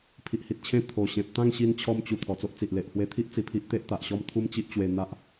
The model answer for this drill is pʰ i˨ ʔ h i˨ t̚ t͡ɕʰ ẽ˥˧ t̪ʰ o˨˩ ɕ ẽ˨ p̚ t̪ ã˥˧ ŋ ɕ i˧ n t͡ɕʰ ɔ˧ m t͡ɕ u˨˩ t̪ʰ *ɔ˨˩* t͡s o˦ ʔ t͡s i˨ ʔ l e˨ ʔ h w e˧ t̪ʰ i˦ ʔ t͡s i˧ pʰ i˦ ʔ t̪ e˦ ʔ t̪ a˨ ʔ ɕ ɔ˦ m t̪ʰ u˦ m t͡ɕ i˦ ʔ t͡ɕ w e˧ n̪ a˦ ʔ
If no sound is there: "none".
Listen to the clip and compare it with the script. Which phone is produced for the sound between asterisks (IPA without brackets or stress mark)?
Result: ɔ˨˩